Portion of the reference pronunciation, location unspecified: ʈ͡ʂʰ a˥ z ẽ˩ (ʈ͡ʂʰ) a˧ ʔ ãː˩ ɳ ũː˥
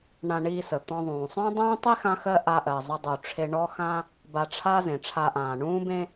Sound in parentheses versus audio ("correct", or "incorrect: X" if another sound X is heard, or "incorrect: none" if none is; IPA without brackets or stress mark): correct